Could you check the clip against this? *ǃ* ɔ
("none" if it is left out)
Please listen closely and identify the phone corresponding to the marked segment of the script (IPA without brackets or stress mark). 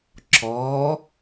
ǁ